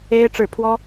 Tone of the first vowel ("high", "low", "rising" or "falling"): high